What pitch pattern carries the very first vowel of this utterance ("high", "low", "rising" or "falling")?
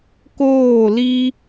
falling